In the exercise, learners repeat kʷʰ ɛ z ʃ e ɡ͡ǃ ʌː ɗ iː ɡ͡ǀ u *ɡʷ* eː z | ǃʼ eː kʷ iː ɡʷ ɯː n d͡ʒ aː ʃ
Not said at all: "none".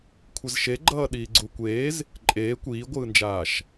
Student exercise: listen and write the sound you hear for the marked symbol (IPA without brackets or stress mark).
kʷ